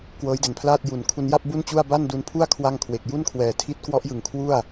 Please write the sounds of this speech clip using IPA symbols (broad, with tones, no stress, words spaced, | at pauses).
kwɤː˦˥jde˨˩npʰlaː˥˩t̚ ju˨˩n kʰu˧nja˥˩p̚ bu˥˩nt͡ɕu˥˩a̯ ba˥˩ndu˧npʰu˥˩a̯ kʰwa˥˩ŋkʰwe˨˩k̚ ju˥˩nkʰwɛː˨˩ tʰi˦˥t̚ kwɔ˦˥ʔjɯ˨˩ŋ kʰwu˥˩a̯